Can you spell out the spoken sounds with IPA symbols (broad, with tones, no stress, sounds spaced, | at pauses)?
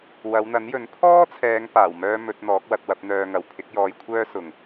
w ɐ˨˧ w n̪ ɐ˨˥ n j ɵ˨˥ n pʰ ɔː˥ t͡sʰ ɛː˨˧ ŋ p aː˨˩ w m œː˥ m ɵ˨˥ t̚ n̪ ɔː˨˥ k̚ w ɐ˧ t̚ w ɐ˨˥ p̚ n̪ œː˧ ŋ ɐ˨ w pʰ ɪ˨˥ k̚ j ɔː˨˧ j kʷʰ œː˥ s ʊ˨ ŋ